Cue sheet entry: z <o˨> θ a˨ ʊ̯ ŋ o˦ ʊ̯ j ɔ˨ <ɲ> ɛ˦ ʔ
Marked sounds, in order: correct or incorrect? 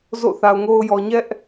incorrect, correct

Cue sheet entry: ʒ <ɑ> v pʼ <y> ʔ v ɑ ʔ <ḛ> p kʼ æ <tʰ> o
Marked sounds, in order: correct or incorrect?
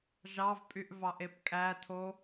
correct, correct, incorrect, correct

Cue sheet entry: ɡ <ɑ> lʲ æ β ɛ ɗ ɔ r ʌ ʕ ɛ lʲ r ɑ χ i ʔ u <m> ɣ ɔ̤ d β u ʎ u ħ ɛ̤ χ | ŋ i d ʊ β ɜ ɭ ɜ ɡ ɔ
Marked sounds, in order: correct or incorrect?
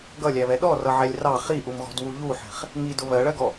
incorrect, correct

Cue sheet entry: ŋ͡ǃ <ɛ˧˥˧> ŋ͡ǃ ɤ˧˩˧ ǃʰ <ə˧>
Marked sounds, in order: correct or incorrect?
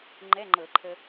correct, correct

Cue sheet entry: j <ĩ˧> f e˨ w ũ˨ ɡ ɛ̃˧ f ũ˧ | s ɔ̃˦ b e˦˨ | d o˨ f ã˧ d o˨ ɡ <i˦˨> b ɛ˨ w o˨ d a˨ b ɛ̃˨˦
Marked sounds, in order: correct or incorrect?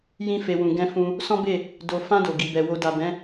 correct, incorrect

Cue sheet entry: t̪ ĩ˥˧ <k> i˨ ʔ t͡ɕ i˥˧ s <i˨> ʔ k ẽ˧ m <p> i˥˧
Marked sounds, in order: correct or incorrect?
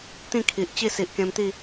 incorrect, correct, incorrect

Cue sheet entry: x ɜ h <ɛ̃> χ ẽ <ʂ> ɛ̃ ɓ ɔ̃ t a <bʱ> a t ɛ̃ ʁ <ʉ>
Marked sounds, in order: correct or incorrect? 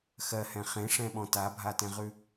correct, correct, correct, correct

